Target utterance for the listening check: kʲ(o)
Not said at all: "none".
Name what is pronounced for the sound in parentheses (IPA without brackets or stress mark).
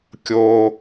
o